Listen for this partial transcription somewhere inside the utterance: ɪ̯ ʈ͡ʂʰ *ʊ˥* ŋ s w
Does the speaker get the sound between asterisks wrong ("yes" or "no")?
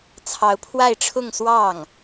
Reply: yes